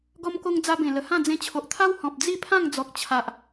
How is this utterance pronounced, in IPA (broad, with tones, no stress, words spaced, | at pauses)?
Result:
ɡɔ˧mko˧ŋ d͡za˧bẽ˨˩lə˨˩hã˥˧ d͡zẽ˧t͡ɕʰo˨ʔt̪ʰa˦w hɔ̃˨p̚ d͡zi˥˧pʰã˥˧ŋd͡zɔ˨k̚ t͡ɕʰa˨ʔ